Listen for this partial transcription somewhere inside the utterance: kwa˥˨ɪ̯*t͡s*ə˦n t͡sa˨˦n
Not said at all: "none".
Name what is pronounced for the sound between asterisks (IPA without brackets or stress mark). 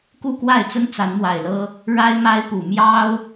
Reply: t͡s